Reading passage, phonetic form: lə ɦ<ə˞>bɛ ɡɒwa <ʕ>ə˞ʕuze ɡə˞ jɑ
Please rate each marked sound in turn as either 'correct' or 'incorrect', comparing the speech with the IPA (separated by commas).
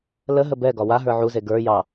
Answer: incorrect, incorrect